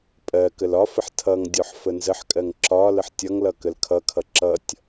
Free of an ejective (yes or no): no